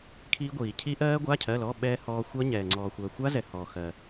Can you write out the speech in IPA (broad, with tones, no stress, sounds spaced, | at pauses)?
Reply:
kʰ iː˦˥ ɡʷ iː˨ cʰ i˦˥ ʔ ɜː˦˥ ɡʷ a˧˥˧ cʰ ɜ˧˥˧ l ɔ˧˥˧ ɓ ɛː˦˥ h ɔː˦˥ xʷ ɜ˦˥ ɲ ɛː˨ ŋ͡ǀ ɔː˨ xʷ ɜ˨ xʷ a˦˥ z ɛ˨ h ɔː˨ x ɜ˨